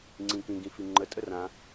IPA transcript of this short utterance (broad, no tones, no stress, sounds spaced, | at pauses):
ŋ͡ǀ ĩ k ĩ ɡ ĩ f i ŋ͡ǃ ə tʼ ə r ã